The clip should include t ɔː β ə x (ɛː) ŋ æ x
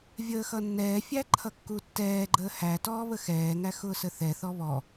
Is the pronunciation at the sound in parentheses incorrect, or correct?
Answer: correct